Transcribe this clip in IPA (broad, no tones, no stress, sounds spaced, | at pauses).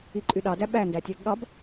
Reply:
i ǃʼ y ɗ ɑ d æ ɓ æ n d æ tʲ æ ɡ ɠ ɑ b